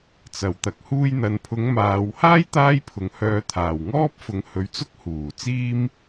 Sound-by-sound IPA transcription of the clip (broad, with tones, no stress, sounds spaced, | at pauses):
t͡s ɐ˨˩ w t̪ ɐ˨ k̚ h uː˧ j n̪ ɐ˨ n pʰ ʊ˨˧ ŋ m aː˨ w h aː˥ j t̪ aː˥ j pʰ ʊ˨˧ ŋ h œː˧ t̪ʰ aː˨˩ w ŋ ɔː˥ p̚ f ʊ˨˧ ŋ h ɵ˨˧ ɥ t͡s ʊ˥ k̚ h uː˨˩ t͡s iː˥ m